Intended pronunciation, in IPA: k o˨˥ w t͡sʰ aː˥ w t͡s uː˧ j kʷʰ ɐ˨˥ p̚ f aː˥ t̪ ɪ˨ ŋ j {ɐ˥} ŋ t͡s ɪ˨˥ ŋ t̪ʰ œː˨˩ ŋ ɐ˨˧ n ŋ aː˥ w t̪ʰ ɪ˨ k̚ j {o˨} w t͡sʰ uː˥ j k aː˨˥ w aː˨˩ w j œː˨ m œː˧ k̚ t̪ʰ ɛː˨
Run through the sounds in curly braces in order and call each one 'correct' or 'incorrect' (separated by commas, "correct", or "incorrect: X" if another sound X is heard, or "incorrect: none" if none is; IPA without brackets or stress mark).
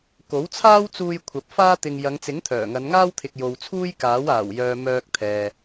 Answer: incorrect: ɐ˨˧, correct